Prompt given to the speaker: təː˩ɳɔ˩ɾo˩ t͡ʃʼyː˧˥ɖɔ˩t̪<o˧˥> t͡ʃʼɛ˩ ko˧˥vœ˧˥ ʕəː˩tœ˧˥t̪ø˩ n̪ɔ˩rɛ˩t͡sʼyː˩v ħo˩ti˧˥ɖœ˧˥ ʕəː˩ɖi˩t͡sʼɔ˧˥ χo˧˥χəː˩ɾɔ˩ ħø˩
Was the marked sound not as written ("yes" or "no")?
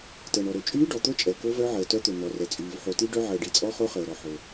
no